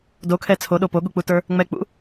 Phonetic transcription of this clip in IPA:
d o kʰ ɛ t͡sʰ o ɗ o p o ɠ u k͡p u t ə˞ | ŋ͡m ɛ k͡p ṵ

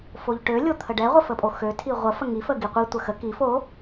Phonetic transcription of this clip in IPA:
f o ʎ ʈ ø lʲ o t̪ʰ ə ɖ ɛ ʁʷ ə f ə pʼ o x ø tʰ i ʁʷ ə f ə ŋ i f ə ɡ i qʷ i tʷ ə x ə k i f o

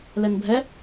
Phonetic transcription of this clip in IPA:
l ɛ n bʱ ɛ

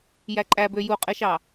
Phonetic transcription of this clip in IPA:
j æ ǃʼ æ b ø j u qʼ e ʃ ɑ

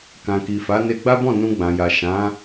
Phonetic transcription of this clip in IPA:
k ã˨ k i˨ f a˨˦ n e˧ ɡ͡b a˦ b ɔ̃˦˨ n ũ˧ ɡ͡b ã˨ j a˨ ʃ ã˨˦

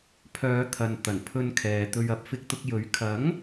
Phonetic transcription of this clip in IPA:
pʰ œː˨˧ t̪ʰ ɐ˨ n t̪ ɐ˨˩ n pʰ ɵ˧ n kʰ ɛː˨ t̪ ɵ˧ ɥ ɐ˧ p̚ f ɪ˧ k̚ t̪ ʊ˧ k̚ j ɵ˨˥ ɥ kʰ ɐ˨˥ ŋ

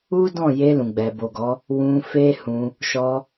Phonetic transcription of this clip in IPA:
u˦ d ɔ̃˦˨ j e˧ l ũ˨ ɡ͡b ɛ˨ b o˨ ɡ ɔ˨˦ | w ũ˧ f e˦ h ũ˧ | ʃ ɔ˧

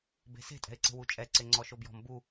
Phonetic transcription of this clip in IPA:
b e̤ s e̤ tʼ ɛ̤ ɪ̯ ǀ e̤ w u t͡ʃʼ ɛ ǀ e ŋ͡ǀ ɔ ʃ o b j ɔ̤ m b u

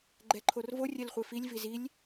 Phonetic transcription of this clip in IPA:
ɡ͡ǃ ɛ ǃʰ o r v o rʲ ɛ l χʷ e f i lʲ v i z i lʲ

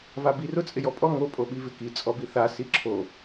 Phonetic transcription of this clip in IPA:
v a b i r ʊ t͡sʼ ɪ j ɔ pʼ ɔ ŋ o pʼ o ɓ i v ɪ k i t͡sʼ ɔ b i θ a s i ǁʰ o

